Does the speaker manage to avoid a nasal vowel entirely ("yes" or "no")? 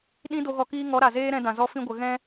no